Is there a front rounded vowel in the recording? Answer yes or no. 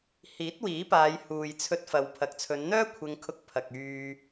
yes